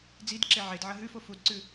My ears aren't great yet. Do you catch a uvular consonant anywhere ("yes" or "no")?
no